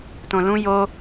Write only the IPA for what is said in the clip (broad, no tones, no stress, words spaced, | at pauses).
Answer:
tõlũ jo